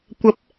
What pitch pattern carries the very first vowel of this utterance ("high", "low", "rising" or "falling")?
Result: rising